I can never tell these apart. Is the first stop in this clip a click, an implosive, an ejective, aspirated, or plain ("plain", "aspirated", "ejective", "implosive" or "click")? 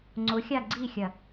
click